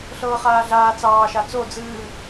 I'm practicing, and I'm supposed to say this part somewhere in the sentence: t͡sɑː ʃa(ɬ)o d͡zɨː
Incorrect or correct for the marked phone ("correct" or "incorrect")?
incorrect